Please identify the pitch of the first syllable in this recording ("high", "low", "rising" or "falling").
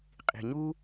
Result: low